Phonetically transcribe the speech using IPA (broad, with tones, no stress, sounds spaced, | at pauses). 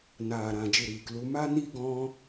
n aː˨ ɾ ã˨ d͡ʒ ɨ˨ ɾ iː˨ k l u˧ m a˦ n i˦ ɡ ɔ̃˦